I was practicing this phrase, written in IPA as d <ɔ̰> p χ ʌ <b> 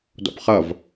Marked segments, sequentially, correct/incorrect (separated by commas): correct, incorrect